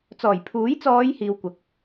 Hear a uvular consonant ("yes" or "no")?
no